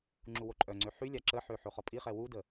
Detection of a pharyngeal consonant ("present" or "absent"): present